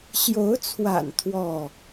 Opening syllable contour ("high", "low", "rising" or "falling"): rising